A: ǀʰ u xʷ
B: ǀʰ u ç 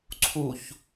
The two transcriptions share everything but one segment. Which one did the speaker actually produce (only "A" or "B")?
B